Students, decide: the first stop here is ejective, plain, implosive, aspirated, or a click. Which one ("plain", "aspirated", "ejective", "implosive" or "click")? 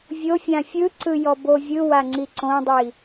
click